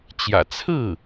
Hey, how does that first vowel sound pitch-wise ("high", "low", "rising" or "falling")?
low